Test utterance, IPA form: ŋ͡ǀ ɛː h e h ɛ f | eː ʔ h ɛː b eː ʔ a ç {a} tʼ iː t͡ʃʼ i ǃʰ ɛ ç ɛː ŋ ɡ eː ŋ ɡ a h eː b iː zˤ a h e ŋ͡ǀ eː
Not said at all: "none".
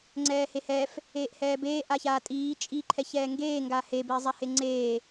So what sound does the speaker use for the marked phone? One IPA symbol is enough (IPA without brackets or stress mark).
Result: aː